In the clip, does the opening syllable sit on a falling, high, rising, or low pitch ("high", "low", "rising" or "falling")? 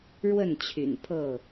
falling